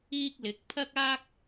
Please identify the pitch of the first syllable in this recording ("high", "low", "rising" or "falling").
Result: high